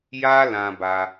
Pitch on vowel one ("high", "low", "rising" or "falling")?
high